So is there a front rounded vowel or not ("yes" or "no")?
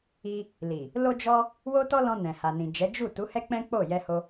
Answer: no